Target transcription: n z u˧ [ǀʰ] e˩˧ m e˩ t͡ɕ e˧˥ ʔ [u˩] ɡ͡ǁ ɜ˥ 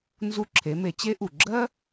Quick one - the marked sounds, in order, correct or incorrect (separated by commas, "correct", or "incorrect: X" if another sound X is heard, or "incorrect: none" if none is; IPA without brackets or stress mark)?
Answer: incorrect: ǁʰ, correct